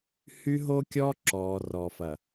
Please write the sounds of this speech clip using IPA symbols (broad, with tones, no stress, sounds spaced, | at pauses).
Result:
h y˦ ɦ o˦ kʲ ɔ˦ ǁ ɔː˨ r ɔ˨ f ɐ˨